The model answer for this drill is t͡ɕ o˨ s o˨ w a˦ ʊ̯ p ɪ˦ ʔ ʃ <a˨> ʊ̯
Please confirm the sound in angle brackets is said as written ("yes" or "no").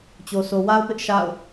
no